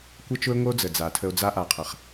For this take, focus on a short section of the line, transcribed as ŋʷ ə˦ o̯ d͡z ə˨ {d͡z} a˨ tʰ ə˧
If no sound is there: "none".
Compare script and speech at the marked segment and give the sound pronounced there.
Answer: d͡z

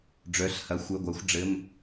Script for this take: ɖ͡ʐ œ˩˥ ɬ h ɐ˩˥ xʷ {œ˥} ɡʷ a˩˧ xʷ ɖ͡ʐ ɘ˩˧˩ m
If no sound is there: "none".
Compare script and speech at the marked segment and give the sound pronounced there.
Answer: œ˩˧˩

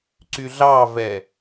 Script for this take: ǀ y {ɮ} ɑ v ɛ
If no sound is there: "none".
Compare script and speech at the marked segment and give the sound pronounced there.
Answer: ɮ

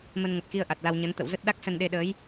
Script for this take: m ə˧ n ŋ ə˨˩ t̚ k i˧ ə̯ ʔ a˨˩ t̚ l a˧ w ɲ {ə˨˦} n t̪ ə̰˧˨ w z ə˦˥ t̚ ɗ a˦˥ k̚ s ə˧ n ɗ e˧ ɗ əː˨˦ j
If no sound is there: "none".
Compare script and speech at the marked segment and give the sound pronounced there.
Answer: ə˨˦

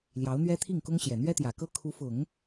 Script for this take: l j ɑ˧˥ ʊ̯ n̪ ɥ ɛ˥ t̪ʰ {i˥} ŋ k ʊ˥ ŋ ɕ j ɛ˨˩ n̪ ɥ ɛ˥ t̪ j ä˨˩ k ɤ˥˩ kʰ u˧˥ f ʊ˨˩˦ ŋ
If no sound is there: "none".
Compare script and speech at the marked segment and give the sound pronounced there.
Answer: i˥˩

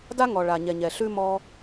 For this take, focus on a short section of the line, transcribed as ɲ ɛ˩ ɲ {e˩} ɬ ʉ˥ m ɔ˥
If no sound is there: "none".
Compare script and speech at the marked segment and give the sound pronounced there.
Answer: ɛ˩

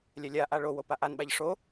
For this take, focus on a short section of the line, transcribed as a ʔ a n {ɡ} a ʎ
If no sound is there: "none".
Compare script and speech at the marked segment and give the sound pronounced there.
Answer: ɓ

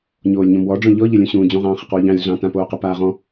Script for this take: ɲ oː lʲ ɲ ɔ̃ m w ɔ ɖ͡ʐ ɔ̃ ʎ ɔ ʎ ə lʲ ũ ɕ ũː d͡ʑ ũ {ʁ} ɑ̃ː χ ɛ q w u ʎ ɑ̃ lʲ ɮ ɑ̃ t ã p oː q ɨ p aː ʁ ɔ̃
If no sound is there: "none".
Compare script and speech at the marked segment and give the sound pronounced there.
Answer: ʁ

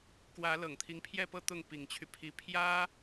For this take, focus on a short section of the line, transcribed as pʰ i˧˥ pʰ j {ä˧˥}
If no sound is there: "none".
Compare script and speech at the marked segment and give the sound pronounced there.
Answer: ä˥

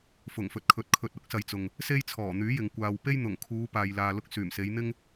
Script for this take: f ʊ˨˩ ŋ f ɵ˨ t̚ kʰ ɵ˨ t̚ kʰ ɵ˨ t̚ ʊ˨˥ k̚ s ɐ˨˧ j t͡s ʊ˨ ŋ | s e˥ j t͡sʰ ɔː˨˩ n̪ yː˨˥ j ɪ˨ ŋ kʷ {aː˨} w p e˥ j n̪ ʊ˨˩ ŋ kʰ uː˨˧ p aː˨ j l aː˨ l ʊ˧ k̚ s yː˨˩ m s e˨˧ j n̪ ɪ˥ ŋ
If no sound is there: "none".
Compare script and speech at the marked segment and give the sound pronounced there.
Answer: aː˨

